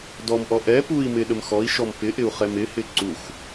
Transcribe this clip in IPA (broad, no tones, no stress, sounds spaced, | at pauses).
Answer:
d ɔ m ʔ ɔ ʔ ɛ p u i̯ m ɪ ɗ ə m x ɔ i̯ ʃ ɔ m p ɪ ʔ ɪ u̯ χ ɛ m ɪ h ɪ ǀ u x